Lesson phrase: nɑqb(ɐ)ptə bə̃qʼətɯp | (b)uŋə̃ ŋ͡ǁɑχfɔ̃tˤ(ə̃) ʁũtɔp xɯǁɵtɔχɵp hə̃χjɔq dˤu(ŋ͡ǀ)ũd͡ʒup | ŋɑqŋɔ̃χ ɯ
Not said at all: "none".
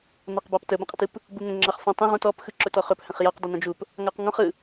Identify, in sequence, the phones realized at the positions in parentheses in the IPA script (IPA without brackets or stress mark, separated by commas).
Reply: ɑ, b, ə̃, n